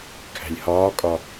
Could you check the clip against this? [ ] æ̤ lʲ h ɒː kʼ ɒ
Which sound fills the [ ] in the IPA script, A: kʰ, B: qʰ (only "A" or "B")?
A